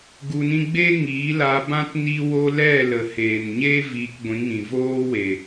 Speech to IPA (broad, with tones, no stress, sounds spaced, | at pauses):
ɡ u˧ n ĩ˦ ɡ͡b e˦ ŋ iː˨˦ l a˧ b ã˦ t n iː˦ w o˦ l ɛ˦˨ l ə˨ h eː˨ n ɲ eː˦ v iː˧ k ɡʷ ĩ˨˦ ŋ ĩ˨ v oː˦ w e˨